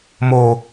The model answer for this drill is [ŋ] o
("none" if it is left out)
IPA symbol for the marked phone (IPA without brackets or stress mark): m